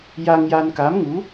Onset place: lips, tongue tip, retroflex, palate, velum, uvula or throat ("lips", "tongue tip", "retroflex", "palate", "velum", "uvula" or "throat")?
palate